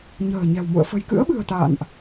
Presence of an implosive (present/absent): present